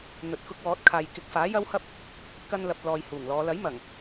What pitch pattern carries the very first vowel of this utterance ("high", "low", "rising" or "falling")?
low